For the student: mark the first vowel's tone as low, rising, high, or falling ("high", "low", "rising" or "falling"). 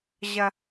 high